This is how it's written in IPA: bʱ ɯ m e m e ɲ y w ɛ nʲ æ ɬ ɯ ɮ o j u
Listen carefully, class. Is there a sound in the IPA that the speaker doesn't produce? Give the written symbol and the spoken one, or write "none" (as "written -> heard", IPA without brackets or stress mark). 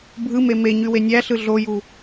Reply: ɛ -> e